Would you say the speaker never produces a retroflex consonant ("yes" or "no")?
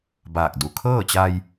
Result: yes